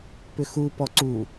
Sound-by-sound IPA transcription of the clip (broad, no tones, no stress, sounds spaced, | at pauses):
p ʏ x u p ɔ ǀ u